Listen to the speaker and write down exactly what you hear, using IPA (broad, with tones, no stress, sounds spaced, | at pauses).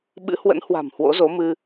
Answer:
ɓ ɨ̰˧˥ h w ə̰˧˥ n h w a̤˨˩ m h w o̰˧˥ z o˨˦ m ɨ˧